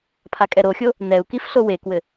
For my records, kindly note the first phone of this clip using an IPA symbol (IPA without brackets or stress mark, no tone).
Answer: pʰ